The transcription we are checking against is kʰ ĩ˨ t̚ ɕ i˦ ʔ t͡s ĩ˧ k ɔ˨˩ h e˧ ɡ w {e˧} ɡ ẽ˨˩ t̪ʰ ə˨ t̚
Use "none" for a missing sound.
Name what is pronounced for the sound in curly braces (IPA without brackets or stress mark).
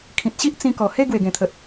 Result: e˨˩